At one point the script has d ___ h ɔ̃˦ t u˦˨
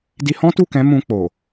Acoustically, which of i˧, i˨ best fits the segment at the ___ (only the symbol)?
i˧